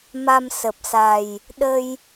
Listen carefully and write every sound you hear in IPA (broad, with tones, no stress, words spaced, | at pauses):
ma˧msə˨˩p̚sa˨˩j | ɗə˧j